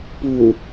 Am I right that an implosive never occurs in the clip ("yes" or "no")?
yes